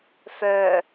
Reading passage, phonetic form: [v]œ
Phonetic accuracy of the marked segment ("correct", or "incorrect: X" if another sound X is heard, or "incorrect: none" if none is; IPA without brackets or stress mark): incorrect: f